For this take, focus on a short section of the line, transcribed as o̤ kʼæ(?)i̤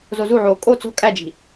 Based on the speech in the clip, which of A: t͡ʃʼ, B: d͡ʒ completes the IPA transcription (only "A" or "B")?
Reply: B